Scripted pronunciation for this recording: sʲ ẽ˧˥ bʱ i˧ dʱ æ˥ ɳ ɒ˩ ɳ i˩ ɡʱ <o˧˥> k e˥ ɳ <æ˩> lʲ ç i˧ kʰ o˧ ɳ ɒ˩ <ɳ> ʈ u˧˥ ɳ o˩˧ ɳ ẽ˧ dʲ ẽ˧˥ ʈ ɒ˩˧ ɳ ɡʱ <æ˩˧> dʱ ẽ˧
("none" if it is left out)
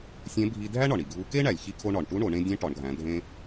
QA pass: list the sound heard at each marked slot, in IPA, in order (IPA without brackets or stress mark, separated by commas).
u˧˥, æ˩, ɳ, æ̃˩˧